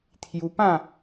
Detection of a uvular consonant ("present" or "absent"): absent